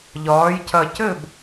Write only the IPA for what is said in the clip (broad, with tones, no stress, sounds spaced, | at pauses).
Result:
ʎ ɒː˩˧ j c ɐ˨˩ c ɘ˥˨ b